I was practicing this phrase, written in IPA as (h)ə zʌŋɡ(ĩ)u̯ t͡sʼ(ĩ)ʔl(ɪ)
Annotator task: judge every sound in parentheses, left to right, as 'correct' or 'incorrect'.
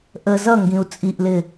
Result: incorrect: ʔ, correct, incorrect: i, correct

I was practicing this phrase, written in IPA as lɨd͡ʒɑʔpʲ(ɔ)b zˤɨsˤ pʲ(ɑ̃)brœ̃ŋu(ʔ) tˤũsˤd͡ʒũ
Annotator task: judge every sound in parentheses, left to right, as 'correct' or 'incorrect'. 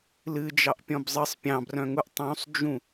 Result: incorrect: ɔ̃, correct, correct

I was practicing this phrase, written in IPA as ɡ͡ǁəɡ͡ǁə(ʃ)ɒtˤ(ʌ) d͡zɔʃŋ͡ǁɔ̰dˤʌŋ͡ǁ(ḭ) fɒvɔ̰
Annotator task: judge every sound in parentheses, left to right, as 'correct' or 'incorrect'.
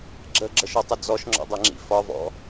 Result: correct, incorrect: ə, correct

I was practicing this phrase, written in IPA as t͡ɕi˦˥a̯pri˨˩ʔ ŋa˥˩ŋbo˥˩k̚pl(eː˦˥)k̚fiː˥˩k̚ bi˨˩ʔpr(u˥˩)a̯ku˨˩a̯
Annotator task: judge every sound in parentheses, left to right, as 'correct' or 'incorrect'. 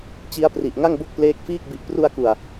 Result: correct, incorrect: u˧

